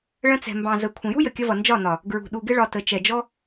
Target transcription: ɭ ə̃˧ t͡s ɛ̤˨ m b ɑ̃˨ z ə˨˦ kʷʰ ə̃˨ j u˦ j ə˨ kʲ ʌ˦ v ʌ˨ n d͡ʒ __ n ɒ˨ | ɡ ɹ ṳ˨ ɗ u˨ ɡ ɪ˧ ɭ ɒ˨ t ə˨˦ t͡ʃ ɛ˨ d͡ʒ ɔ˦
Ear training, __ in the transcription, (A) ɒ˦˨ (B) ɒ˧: A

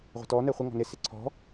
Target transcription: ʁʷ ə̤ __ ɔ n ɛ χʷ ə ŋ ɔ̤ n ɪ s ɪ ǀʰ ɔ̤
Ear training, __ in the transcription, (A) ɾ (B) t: B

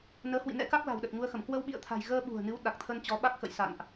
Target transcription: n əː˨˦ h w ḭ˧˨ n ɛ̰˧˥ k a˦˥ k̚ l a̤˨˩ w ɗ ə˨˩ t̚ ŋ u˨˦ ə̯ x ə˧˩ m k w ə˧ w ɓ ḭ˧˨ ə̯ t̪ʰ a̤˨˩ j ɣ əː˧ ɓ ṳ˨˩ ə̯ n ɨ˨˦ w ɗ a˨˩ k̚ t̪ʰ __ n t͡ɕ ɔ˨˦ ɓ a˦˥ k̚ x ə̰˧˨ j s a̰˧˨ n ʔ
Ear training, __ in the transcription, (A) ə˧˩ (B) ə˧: B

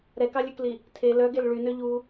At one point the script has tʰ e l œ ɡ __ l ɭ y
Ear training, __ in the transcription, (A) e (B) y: A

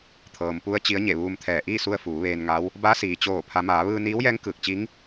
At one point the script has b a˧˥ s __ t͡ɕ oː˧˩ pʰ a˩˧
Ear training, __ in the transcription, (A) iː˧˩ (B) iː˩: B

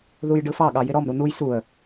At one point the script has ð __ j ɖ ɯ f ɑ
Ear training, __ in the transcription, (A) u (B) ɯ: A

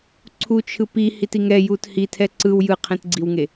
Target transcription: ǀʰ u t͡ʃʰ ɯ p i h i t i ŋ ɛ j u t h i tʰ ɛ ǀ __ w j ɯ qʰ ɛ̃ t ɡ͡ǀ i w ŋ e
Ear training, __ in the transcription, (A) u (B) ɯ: B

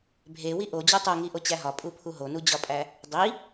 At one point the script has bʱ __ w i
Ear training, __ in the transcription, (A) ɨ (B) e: B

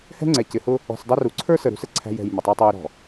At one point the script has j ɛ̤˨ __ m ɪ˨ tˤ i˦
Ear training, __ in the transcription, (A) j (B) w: A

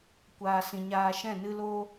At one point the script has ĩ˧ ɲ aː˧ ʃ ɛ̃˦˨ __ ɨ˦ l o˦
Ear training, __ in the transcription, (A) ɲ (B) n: B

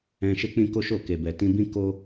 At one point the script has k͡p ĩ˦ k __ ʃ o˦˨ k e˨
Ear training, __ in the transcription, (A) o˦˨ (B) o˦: B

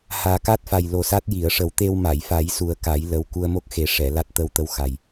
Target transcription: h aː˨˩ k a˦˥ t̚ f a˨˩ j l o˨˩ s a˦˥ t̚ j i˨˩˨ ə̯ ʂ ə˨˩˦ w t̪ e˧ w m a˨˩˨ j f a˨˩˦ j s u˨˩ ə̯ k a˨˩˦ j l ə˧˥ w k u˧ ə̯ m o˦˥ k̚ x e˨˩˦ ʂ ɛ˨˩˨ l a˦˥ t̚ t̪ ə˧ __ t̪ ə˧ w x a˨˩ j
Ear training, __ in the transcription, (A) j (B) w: B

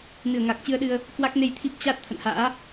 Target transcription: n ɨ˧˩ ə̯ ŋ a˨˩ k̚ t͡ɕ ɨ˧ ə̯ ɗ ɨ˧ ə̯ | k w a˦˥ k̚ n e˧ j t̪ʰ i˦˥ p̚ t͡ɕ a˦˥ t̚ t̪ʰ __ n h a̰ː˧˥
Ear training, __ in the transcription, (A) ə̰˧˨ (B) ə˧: A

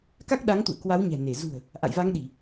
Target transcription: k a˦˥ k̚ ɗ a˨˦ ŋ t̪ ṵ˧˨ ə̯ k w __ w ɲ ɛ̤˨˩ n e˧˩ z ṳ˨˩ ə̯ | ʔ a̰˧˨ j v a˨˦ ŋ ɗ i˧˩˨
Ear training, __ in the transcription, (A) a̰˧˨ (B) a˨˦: B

